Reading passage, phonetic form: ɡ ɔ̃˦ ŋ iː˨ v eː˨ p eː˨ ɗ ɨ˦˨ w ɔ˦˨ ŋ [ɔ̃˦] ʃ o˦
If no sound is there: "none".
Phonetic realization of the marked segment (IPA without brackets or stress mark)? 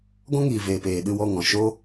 ɔ̃˨